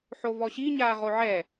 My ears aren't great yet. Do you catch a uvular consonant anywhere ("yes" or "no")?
yes